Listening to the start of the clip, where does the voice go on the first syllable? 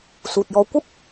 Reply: low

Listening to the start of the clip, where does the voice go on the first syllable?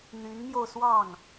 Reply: rising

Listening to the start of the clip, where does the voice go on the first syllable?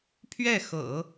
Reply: falling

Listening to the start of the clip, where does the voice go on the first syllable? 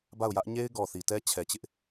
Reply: falling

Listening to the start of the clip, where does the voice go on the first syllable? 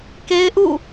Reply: high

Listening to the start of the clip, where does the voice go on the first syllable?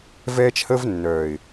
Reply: high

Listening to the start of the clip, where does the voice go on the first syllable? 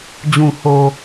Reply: low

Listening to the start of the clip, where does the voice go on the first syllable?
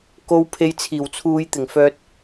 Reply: low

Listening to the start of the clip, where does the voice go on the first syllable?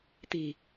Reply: low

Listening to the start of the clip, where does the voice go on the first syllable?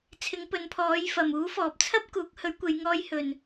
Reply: rising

